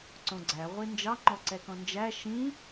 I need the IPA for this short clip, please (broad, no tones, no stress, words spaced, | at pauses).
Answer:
ǀõɡ͡ǀæ ʁʷind͡ʒɑ ŋ͡ǃɔǀɛkɔ̃nd͡ʒæ ʃĩ